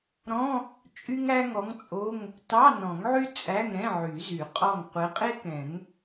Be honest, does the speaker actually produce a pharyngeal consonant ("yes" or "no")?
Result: yes